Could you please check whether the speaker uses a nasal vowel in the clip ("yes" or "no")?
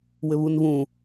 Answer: yes